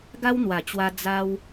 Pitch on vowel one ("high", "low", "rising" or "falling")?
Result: high